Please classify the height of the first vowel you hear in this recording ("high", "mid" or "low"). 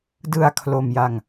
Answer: high